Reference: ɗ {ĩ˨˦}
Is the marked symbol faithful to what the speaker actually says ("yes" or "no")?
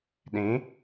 yes